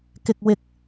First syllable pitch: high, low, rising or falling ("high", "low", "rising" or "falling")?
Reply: low